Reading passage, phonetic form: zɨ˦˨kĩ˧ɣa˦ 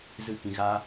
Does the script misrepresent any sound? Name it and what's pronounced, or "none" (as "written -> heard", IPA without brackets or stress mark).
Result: none